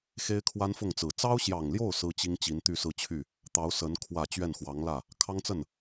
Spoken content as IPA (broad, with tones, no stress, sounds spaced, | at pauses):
x e˥ ɪ̯ kʰ w a˥ n f ʊ˥˩ ŋ t͡s ɹ̩˨˩ t͡s ɑ˥ ʊ̯ ɕ j ɑ˨˩ ŋ l j o˥˩ ʊ̯ s ɹ̩˥ t͡ɕ i˥ ŋ t͡ɕ i˧˥ n t̪ y˥˧ s ɹ̩˥˧ t͡ɕʰ y˥˩ | t̪ ɑ˧˥ ʊ̯ s ə˧˥ n kʰ w ä˨˩ t͡ɕ ɥ ɛ˥˩ n x w ɑ˧˥ ŋ l ä˥˩ | kʰ ɑ˥ ŋ t͡s ə˥˩ n